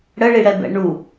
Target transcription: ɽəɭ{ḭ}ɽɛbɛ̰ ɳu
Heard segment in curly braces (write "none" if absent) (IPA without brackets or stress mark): i